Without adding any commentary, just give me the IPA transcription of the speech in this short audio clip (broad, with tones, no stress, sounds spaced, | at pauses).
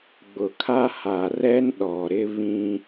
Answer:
ɡ͡b ʊ˨ kʰ a˦ h a˨ r ɛ˦ n ɗ ɔ˨ ɾ ɪ˦ β ĩ˦